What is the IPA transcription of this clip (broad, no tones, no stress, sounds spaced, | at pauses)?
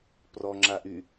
p r ɔ ŋ͡ǁ a ʔ y